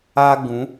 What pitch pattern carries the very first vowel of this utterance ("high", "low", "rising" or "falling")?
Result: high